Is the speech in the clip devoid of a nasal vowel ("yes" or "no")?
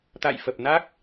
yes